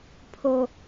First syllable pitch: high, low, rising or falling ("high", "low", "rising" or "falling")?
low